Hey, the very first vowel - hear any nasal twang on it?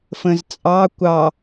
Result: yes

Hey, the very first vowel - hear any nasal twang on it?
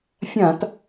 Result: yes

